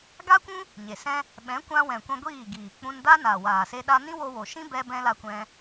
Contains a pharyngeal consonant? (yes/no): no